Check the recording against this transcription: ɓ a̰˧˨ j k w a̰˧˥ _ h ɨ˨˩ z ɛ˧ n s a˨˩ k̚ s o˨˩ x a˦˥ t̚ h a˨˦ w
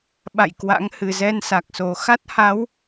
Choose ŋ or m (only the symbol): ŋ